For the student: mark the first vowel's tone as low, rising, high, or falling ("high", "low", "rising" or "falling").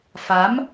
rising